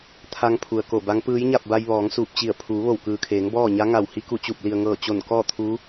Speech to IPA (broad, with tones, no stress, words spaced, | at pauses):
t̪ʰa˧ŋ pʰu˩ə̯ko˧˩ba˧˥ŋ pɯː˧˥jɲa˥˨p̚ba˧j ʋɔː˩˧ŋsuː˧˩p̚t͡ɕi˧˩ə̯ pʰuː˩˧ʋo˧˩wkɯː˩kʰeː˩˧ŋ bɔː˥˨ ɲa˧˥ŋa˧˩w hi˧ku˧˩t͡ɕu˧˩p̚ li˩ə̯ŋɤː˧˩ t͡ɕo˧˩nkɔː˥˨t̪ʰu˧˥